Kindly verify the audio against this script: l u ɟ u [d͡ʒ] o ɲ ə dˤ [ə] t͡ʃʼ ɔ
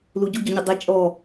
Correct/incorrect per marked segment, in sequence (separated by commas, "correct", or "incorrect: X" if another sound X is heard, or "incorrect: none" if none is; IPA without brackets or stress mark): incorrect: ɟ, correct